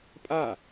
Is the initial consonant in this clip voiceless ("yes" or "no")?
yes